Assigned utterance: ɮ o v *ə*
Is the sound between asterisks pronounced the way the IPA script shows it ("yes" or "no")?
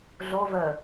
yes